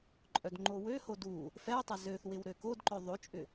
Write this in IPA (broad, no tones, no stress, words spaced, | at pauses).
ǃʼœdŋ͡ǃowøho du | fɛu̯tˤɐ zøθwɪw ɾøkodǃœ ðˤot͡ʃʼʏ